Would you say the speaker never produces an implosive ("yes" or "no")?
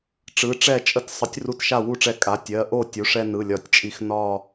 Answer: yes